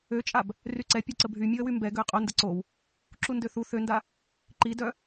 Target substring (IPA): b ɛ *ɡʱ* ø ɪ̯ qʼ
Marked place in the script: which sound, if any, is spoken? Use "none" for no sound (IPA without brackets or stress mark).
ɡ